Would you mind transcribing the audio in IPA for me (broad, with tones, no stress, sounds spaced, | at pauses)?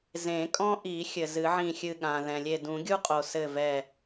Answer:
z ẽ˨˩˦ kʼ ɔ̃˥ ʔ i˨˩˦ xʲ ɘ˩ z ɨ˨˩˦ ʕ ĩ˧˩ xʲ ɨ˧˩ ɠ ã˩ ð ɛ̃˩ lʲ e˧˩ d ũ˨˩˦ ɡʲ u˥ qʼ o˩ s ɘ˧˩ v ɛ˧˩